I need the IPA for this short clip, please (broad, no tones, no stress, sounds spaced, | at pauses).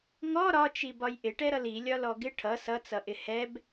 ŋ ɔ ɾ ɒ t͡ʃ i b ɒ j ʔ ɪ ʈ ɛ ɾ ʌ l i lʲ ɒ l ɔ ɡ ɪ ʈʰ ʌ s ʌ t͡s ʌ ʔ ɪ h ɛ b